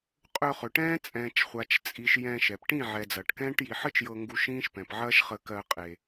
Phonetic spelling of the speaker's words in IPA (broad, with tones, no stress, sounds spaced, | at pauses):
qʼ ɵ˧ χ ɵ˨ ʈ ɛ̃ː˦ t͡sʼ ɛ̃ː˨ t͡ʃ χʷ a˨ t͡ʃ t͡sʼ i˨ ʃ j ɛ̃˧ ʃ ɛ˨ p ʈ ĩ˦˨ ʕ ɛ˨ d͡z ɐː˨ ʈ k ɛ̃ː˦ ʈ j i˨ ħ ə˦ t͡ʃ j ɤ˧ ŋ ɡ u˧ ʃ ĩː˦ ʃ p ɛ̃˨ p ʕ ɐː˦ ʃ χ ə˧ k ɜ˧ qʼ e˨